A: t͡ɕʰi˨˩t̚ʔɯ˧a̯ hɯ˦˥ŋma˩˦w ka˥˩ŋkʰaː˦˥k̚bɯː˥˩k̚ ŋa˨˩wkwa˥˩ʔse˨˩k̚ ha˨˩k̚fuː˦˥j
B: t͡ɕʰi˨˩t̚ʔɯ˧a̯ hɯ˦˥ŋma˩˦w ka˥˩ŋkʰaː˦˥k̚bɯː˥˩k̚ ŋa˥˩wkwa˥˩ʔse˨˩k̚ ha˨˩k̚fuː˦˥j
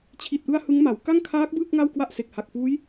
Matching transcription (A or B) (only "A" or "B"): B